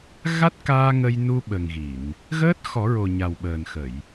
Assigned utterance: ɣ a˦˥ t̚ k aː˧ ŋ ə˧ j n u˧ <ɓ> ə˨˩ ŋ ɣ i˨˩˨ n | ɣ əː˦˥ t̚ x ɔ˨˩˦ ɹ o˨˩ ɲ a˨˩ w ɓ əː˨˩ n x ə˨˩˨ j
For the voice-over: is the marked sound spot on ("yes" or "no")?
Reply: yes